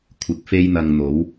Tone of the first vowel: rising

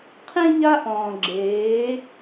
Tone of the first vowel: high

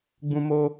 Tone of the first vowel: high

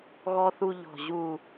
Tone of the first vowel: high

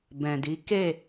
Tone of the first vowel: low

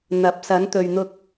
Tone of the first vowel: rising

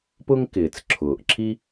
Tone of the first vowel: high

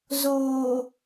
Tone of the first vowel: low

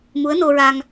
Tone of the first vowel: rising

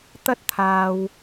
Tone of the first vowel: high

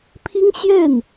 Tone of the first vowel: high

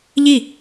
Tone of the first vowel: falling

